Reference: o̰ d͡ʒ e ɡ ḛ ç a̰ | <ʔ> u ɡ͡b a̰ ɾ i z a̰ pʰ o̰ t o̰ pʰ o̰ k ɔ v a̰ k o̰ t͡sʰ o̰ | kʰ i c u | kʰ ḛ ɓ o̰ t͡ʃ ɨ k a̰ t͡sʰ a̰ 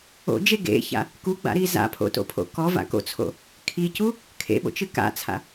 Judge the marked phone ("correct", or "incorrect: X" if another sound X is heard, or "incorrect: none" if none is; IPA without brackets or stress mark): incorrect: k